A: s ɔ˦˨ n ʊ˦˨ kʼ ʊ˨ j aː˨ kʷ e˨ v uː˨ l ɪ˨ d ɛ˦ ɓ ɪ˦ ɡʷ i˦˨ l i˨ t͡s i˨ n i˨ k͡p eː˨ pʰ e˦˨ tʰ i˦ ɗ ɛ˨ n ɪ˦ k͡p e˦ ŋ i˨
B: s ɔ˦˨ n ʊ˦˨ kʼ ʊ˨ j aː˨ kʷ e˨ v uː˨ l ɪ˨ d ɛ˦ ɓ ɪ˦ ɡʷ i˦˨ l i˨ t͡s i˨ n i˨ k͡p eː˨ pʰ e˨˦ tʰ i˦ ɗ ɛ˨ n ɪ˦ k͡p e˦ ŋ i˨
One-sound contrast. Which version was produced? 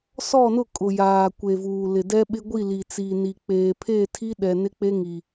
A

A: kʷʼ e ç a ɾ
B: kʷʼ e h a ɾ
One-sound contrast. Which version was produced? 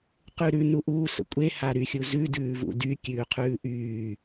B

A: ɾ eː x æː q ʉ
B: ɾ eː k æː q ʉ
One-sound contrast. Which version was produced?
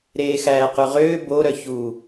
A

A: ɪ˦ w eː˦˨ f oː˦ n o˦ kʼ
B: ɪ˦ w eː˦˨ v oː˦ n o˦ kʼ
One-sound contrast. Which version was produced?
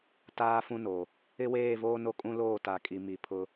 B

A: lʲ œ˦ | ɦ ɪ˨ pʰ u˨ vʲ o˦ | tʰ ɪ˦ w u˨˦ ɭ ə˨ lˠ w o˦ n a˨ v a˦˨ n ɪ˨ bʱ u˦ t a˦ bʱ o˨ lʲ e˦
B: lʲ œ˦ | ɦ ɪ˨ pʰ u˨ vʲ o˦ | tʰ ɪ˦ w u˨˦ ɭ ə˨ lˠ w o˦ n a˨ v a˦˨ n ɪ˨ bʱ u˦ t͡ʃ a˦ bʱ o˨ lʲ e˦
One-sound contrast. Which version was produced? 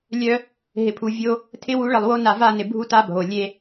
A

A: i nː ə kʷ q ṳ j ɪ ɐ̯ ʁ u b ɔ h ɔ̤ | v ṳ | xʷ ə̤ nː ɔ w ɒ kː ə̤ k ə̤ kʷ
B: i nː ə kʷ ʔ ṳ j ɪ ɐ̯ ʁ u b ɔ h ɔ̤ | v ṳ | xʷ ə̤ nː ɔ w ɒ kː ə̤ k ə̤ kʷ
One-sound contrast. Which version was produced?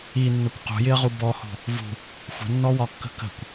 A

